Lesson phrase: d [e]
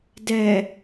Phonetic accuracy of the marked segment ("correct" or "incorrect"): incorrect